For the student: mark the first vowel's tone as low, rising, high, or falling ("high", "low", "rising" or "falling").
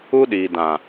high